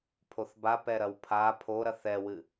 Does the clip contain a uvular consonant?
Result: no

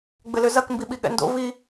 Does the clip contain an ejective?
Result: no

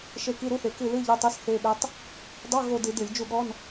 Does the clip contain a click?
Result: no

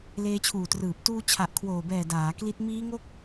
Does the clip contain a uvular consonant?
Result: no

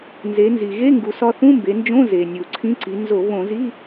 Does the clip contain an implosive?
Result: no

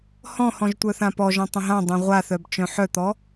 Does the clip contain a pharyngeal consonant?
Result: yes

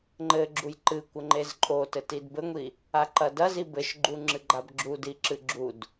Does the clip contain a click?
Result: yes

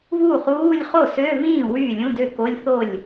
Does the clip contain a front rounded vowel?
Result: yes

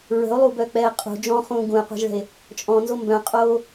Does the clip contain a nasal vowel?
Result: yes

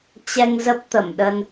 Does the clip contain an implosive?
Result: yes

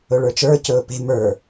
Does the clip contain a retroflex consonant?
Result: yes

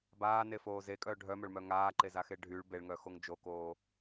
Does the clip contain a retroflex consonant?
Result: yes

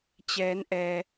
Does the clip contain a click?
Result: no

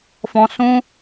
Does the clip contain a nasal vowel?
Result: yes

